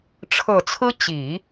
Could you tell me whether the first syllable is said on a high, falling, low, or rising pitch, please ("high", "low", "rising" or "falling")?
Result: low